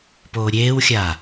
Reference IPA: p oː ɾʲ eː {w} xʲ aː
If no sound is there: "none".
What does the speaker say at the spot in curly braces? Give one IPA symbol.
w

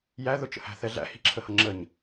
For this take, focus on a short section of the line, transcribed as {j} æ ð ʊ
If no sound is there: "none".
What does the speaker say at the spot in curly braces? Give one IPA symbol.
j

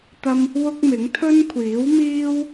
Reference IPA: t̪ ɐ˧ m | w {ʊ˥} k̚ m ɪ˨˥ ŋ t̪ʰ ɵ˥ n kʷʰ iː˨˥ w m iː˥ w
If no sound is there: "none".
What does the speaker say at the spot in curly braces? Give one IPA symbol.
ʊ˥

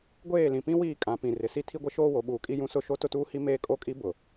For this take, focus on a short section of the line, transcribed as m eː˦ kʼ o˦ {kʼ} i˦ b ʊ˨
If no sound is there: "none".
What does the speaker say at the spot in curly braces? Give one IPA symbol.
kʼ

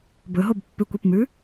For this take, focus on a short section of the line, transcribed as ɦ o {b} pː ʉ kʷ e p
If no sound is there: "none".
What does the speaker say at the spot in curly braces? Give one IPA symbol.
b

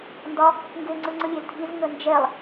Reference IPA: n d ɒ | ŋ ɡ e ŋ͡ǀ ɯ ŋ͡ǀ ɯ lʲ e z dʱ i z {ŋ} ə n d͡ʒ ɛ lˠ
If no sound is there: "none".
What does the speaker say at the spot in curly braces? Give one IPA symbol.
ŋ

